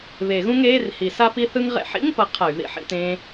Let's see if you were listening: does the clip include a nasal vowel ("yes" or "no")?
yes